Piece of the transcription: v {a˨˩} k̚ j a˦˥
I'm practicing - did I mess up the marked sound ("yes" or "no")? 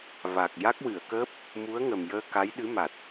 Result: no